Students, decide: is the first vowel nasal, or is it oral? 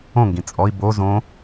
nasal